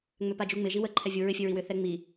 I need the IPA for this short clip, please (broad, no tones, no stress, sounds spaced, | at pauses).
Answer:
ŋ͡m ʏ p a d͡ʒ u ŋ͡m ɪ ʒ i w ə ǃʰ ɛ vʲ u ɹ ɪ fʲ ɘ ɹ i w ʏ θ ɛ ŋ͡m i